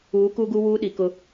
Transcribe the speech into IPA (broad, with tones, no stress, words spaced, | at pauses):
uː˨˦ku˦ɡu˦ wuː˦ɗi˨kʊ˦